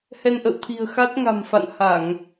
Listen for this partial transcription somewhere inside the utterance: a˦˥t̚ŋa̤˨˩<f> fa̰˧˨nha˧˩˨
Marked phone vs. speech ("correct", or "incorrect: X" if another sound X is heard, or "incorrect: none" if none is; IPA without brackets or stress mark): incorrect: m